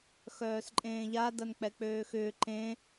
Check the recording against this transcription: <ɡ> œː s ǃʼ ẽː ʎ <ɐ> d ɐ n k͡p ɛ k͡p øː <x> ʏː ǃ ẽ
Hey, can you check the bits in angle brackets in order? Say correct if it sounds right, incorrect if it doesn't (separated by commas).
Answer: incorrect, incorrect, correct